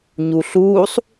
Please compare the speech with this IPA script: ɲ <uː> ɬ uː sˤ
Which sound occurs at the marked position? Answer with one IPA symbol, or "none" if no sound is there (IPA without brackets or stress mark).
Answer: u